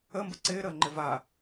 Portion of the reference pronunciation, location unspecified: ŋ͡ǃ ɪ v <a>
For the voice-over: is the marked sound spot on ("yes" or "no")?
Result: yes